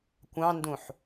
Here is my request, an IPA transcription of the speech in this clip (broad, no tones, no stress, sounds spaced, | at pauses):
kʷ ɑ̃ n d ũ ħ